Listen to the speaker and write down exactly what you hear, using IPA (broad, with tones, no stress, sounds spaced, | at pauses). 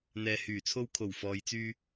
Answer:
n̪ ɛː˨ h yː˨˩ t͡sʰ o˧ w kʰ o˨˩ w f ɔː˨ j t͡s yː˧